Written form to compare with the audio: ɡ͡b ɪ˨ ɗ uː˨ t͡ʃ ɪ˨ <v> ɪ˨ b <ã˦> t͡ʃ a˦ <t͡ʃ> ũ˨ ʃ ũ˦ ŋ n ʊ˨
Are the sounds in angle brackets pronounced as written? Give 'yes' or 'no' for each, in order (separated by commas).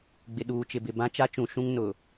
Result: no, yes, yes